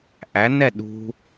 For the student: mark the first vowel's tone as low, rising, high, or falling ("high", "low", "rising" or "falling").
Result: rising